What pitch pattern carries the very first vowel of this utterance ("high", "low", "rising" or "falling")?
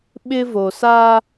high